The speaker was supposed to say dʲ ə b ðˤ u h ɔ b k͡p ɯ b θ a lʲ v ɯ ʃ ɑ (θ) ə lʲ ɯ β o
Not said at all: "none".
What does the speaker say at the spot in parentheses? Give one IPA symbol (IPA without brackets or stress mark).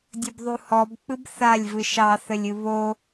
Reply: θ